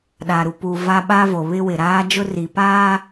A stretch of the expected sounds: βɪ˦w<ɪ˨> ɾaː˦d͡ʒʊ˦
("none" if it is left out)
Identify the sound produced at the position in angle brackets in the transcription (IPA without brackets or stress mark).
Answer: ɪ˨